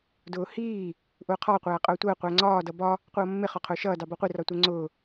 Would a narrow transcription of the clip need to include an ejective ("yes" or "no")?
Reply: yes